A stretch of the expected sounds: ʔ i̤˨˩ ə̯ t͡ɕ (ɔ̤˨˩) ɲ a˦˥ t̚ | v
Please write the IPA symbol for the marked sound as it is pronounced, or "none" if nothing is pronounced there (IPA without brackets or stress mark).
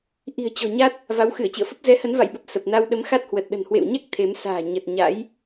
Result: ɔ̤˨˩